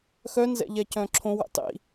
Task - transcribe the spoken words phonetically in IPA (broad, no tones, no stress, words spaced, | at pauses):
xœnzɛ̰ ʎɛcœ̃ːǁʰõwɛ̰ tˤḭ